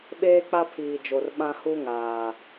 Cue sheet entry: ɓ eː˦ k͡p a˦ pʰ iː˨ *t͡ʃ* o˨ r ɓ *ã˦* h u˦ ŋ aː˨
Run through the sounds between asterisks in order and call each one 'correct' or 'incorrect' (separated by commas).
incorrect, correct